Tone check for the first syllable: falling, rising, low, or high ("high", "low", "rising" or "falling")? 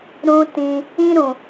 high